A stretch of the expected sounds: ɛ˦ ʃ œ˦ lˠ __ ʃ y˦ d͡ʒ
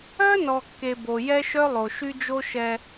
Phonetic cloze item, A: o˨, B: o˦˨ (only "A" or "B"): A